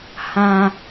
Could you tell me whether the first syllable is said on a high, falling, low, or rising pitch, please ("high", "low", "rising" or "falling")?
low